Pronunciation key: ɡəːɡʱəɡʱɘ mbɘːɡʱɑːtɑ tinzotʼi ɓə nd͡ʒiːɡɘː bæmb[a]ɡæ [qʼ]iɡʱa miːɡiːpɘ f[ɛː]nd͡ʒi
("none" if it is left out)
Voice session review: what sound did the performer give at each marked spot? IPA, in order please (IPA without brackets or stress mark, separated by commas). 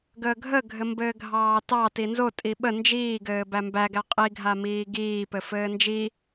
æ, qʼ, ɘː